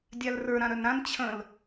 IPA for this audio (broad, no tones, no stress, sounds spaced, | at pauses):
dʲ a l r ə˞ ɾ ã ɾ œ n ɾ ã n t͡ɕʰ ə̃ l